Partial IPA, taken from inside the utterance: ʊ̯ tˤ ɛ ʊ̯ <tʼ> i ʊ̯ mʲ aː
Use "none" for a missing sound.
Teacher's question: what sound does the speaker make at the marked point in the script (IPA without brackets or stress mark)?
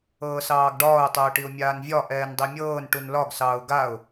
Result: ʈ